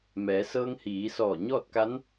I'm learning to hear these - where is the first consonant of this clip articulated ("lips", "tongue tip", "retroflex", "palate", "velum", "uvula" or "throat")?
lips